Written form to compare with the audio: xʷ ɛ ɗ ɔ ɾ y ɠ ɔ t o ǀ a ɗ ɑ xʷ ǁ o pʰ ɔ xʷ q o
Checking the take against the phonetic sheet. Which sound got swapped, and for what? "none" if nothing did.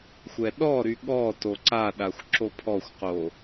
ɑ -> a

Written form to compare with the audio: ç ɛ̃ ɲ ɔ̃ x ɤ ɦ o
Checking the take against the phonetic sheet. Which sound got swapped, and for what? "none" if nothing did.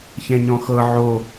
ɦ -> ʕ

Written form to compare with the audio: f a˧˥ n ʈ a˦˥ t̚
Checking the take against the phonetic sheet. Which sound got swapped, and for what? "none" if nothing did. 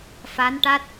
none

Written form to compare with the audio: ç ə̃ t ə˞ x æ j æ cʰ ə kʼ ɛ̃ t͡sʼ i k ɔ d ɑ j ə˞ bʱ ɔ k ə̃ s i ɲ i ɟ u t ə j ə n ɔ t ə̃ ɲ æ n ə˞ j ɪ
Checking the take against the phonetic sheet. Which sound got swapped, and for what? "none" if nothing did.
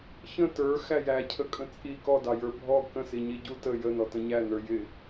ɛ̃ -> ə̃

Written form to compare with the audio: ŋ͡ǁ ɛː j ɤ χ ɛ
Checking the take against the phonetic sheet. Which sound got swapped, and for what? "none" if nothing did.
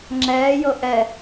χ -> ʔ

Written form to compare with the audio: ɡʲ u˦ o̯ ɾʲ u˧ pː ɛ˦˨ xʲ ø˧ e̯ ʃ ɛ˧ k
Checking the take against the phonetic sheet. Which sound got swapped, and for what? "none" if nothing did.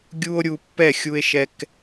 ø˧ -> u˧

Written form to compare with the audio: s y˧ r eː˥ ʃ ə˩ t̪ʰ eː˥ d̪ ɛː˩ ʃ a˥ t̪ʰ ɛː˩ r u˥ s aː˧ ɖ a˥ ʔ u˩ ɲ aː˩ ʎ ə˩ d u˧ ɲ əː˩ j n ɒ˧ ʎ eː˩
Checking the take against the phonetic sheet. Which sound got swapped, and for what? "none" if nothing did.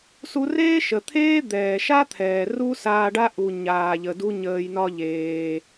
y˧ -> u˧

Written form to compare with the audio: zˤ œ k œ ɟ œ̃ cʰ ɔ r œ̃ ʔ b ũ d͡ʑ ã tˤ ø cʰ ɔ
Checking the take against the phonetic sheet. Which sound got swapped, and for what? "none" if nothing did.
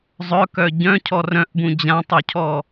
none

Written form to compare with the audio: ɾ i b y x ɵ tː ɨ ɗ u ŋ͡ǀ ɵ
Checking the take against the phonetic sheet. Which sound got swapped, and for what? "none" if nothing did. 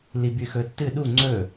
ɾ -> l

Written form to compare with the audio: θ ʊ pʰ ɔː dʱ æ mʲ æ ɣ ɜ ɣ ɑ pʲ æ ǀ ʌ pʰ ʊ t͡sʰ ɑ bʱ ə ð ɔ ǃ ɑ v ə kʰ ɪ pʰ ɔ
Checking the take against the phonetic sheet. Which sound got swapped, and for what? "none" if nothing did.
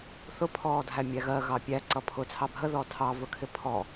ǃ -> tʰ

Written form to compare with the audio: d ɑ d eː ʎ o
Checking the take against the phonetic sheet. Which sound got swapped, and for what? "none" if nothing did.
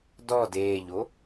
ɑ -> ɔ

